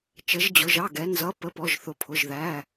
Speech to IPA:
t͡ʃ ə˩˧ ʒ d͡ʑ ʊ˩˧ ʒ ɑ˩˧˩ ɡ ɛ˩˧ n z ʌ˩˧˩ p ə˩˧˩ p ɔ˩˧˩ ʒ θ ʊ˩˧ pʰ ʊ˩˧˩ ʒ ð æ˩˧˩

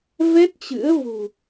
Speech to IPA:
v ɛ˦˥ t̚ t͡ɕ ɨ̰˧˥ ə̯ v ṳ˨˩

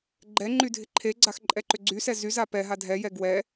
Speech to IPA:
ɡ͡ǃ ɛ ŋ͡ǃ y dʱ ɪ ǃʰ e ɡ͡ǀ a x ǃʼ ɛ ǃ ʏ ɡ͡ǀ y s ɛ z y z a p ɛ ɦ a dʱ ɛ j ɛ ɡ w ɛ

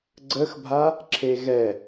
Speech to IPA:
ɡ͡ǀ ə x bʱ a | ǁʰ e ɣ ɛ

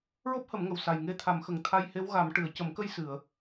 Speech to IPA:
ɹ o˦˥ p̚ h ə˨˩˦ m ŋ ə˨˩ w s a˨˩ j ŋ e˧ t̪ʰ a˨˩˦ m x ə˨˩ ŋ t̪ʰ a˧ j h e˧˥ w ɣ a˨˩˦ m ʈ ɨ˨˩˨ ə̯ c ə˨˩˦ m k ə˧ j s ɨ˨˩˨ ə̯

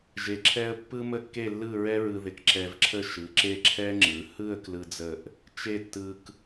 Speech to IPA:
ʒ e˧ ǁʰ ɛ˥ ə̯ pː ɯ˥ m ə˥˧ kː e˥˧ lː ɯ˥˧ ɹ ɛ˥ ɹ ɯ˧ ð ɪ˧ k ǁ ɛ˧ v ǁʰ ə˥˧ ʃ ɯ˩˧ ǁ e˥˧ ǁʰ ɛ˥ ŋ͡ǁ ɯ˩˧ h ɯ˥˧ ə̯ k l ɯ˧ d͡z ə˧˩ ʔ | t͡ʃ e˥˧ tː ɯ˧ k

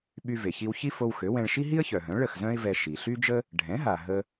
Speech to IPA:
ɓ y˧ v e˩ ç i˧ w ç i˥ f o˧ w x ø˩˥ w ɛ̃˧ ɭ ʃ i˥ ɦ i˥ ə̯ ç œ˩ ɦ œ̃˩˥ ɭ ə˥˩ x z œ̃˥ ɪ̯ v ɛ˧ ʃ i˩ ɬ y˥ d͡ʒ ə˥ | ɖʱ ɛ̃˩˥ ɦ a˩ ɦ ə˧

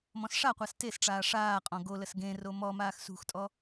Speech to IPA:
m ɔ̃ s ʂ a qʷ a s t e s ʈ͡ʂ aː ʂ aː qʼ ɔ̃ ɡ o l ə s ɡ ẽ r o m ɔ m aː x s ṳ x tʼ ɔ

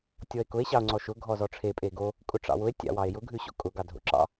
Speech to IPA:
tʲ ɔ e̯ k ʊ e̯ ɕ ɑ o̯ ŋ͡ǀ ɔ ʃ ʊ ɡʱ ɔ z ɔ ʈ͡ʂʰ e pʼ e ɡ o | kʼ ʊ ʈ͡ʂ ɑ̰ w ʊ e̯ tʲ ɑ̰ w ɑ e̯ j ʊ ɡʱ ʉ ɕ o̰ kʼ ʊ ɡ ɑ dʱ o̰ ǁ ɑ̰

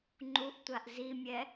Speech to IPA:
ŋ͡ǃ u ʔ tʷ a ʔ z i mʲ ɛ

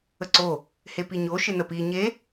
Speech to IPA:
ə ǀ o | h e p i ɲ o ʃ ɪ n ə p i ɲ e

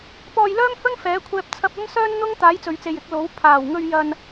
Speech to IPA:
p ɔː˧ j l œː˥ m h ɵ˥ n f ɛː˨˥ kʷʰ ɛː˧ p̚ t͡sʰ ɐ˧ p̚ ɐ˥ m s œː˥ n n̪ ʊ˥ ŋ t̪ aː˨˥ j t͡s ɵ˨ ɥ t͡s e˨ j ɪ˨˥ k̚ l o˨˥ w pʰ aː˨˩ w ŋ ɵ˧ ɥ j ɐ˧ n

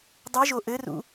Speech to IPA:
dˤ ɨ ʒ o ʔ ɘ r ṵ

